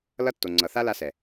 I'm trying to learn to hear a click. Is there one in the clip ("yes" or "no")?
yes